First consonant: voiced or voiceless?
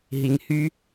voiced